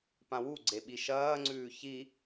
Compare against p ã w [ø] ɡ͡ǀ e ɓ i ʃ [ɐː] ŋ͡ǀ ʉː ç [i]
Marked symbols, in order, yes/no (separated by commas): no, yes, yes